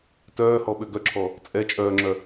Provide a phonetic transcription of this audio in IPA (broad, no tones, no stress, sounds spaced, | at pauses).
t œː h ɔ ɓ ø ɡ œ ǁʰ ɔ | t͡sʼ ɛ t͡ʃʼ œː ŋ͡ǁ œ